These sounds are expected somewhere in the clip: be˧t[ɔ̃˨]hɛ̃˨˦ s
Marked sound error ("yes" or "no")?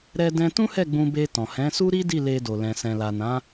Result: no